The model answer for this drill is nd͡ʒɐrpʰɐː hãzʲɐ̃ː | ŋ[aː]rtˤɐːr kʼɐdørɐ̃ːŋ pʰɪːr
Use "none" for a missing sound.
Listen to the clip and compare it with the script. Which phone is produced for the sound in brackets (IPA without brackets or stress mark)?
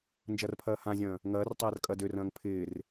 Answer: ɐː